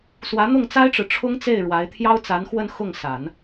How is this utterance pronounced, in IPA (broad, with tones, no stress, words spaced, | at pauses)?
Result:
swä˧˥n̪ʊ˥˩ŋ t͡sa˥ɪ̯ʈ͡ʂɻ̩˨ ʈ͡ʂʰʊ˥ŋt͡se˥˩ɪ̯ ɻwa˧˥ɪ̯ t̪ʰjɑ˥ʊ̯ t͡sa˧˥n xwə˥˧n xʊ˥˩ŋsa˨˩˦n